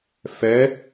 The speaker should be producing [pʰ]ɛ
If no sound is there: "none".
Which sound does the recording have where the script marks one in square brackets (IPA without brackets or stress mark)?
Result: f